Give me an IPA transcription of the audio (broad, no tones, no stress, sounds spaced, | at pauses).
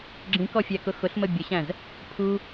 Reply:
ɡ͡ǁ ĩ k ɔ fʲ æ k ʊ x ʊ ɬ m ə bʲ ə ɕ æ̃ z | pʰ u